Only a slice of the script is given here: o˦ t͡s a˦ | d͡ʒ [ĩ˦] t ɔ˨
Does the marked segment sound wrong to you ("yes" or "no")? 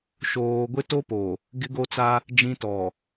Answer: no